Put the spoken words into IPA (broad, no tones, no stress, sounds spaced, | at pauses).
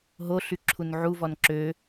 ɦ o ɬ y ǁʰ u n ʕ u v ɔ n ǁ ø